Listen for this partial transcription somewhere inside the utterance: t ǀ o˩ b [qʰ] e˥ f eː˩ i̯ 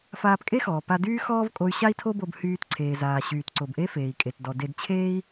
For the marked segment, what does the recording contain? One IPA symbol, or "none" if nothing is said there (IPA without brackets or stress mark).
ʔ